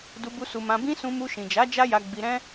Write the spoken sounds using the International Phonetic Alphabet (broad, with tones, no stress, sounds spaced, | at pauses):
d u˧ b u˧ s u˧ m ã˧ b ĩ˦ s ũ˧ m u˧ ʃ ĩ˨ d͡ʒ a˨˦ d͡ʒ a˦ j a˧ ɡ͡b i˧ ɾ ɛ̃˦